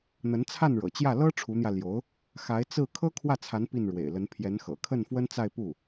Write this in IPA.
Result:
n̪ə˧˥nt͡sʰa˥˩nɻɤ̰˨˩t͡ɕjä˥˩ lɤ˥ ʈ͡ʂʰu˧˥n̪jä˧ ljo˧˥ʊ̯ | xa˧˥ɪ̯t͡sɹ̩˥˩ kʰɤ˥kʰwä˥˩t͡sʰa˧˥n pi˥˩n ɻwḛ˨˩ɪ̯lə˧˥n pʰjɛ˧˥nxɤ̰˨˩ kʰə˥˩nfwə˥nt͡sa˥˧ɪ̯ pu˥˩

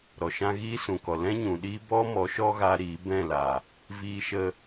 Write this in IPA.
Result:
ɾɔ˨ʃã˦ ɣiː˦sũ˨kɔ˨ lɛ̃˦ ɲũ˨ɗiː˦ bɔ˦mɔ˨˦ʃɔ˦ɣa˧ ɾiː˨˦bɛ̃˦˨la˨ | viː˧ʃə˧

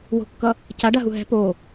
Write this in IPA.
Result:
wo̤kːʌ | caɖaɦu ɦɛ̤ po

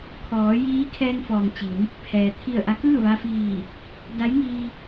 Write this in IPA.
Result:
kʰɔː˩˧jiː˧˥kʰɛː˧ŋfɔː˩ŋ t͡ɕi˩˧n | pʰɛː˩ t̪ʰi˧˩ə̯ʔa˧˥ kɯː˥˨ʋa˧fiː˧˩ | da˧˥jŋiː˧

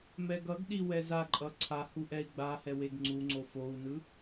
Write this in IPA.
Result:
mɛɡʌɡɗi wɛzaǃʼʌ ǀʰahu ʔɛi̯ɡ͡bahɛ weɡŋ͡ǀuŋ͡ǀo fou̯nɯ

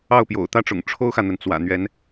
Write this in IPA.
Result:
ɑ˥˩ʊ̯pjo̰˨˩ʊ̯t̪ä˥ʈ͡ʂʊ̰˨˩ŋ ʈ͡ʂʰo˥ʊ̯xä˨n̪ə˩n t͡swä̰˨˩n̪ɥɛ˧˥n

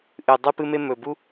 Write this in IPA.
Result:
ʔɨ˨ dˤɨ˦pɨ˦me˦ mɵ˨bu˦

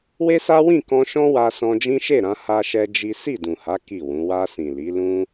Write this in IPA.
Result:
we˦sa˦wĩ˦˨kɔ̃˧ ʃɔ̃˦wa˧ sɔ̃˧d͡ʒĩ˦ʃe˦˨ɾã˧ ha˦ʃɛ˦d͡ʒi˦ si˦˨dũ˨ha˨˦ ki˦˨wũ˨˦ wa˧sĩ˨li˨˦lũ˦

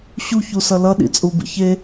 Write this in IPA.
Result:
ɕuçusʌ lʌɗḭt͡sʼubḭ çe

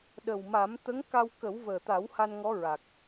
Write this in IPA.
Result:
ɗə˨˩wma˨˩˦m t̪ə˧˥ŋka˧w kə˨˩˦wvəː˨˩t̪a˨˩˦w ha˧nŋɔ˧˥ɹa˨˩k̚

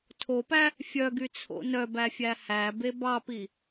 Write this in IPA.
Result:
tʰopæ | fʲœɡyt͡sʰo̰ nœbæfʲæ hæbe bɑpi

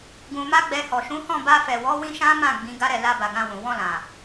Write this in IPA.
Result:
ɡũ˧ma˦ɡ͡bɛ˧ hɔ˨ʃũ˨˦ hɔ̃˦˨ba˧fɛ˨wɔ˨˦ wĩ˦ʃã˦mã˦˨ ɡ͡bĩ˨˦ɡa˦ɾɛ˦˨ la˧ba˨ ɡã˧wũ˨ wɔ̃˧lã˨

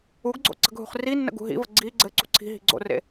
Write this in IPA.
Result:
uɡɡ͡ǀo̰ ǀə̤ɡɦṳχrinːə̰ ɡṳɦḭvə ɡ͡ǀi ɡ͡ǀɘ ǀṳǀʰi̤ɦi̤ ɡ͡ǀo̰rḛ

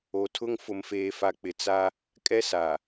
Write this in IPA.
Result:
o˨tʰʊ˦ŋ fʊ˨mfeː˨fa˨k͡pɪ˨ t͡sa˦ | kʼɛ˦sa˨

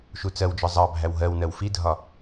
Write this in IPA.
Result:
ʃut͡sɜwd͡ʒɒ zˤɑbʱæw ɦɜwnɜw fidʱɒ

